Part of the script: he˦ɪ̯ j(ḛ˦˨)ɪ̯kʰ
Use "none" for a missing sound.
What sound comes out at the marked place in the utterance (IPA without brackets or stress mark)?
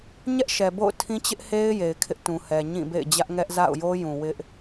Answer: e˨